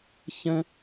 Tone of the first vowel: high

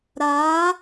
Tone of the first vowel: rising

